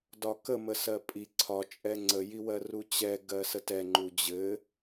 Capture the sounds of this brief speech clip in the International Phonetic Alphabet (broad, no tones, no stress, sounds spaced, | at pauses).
d ɒ k ə m ə s ɜ pʼ i ǀʰ ɒ t͡ʃʼ ɛ ŋ͡ǀ ə j i w ɜ r u t͡ɕ ɛ ɡ ɜ s ə t ɛ ŋ͡ǃ u d͡ʑ ɘ